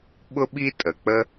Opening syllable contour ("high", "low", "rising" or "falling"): high